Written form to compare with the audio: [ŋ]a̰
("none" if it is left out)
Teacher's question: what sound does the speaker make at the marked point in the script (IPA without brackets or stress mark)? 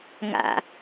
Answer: ŋ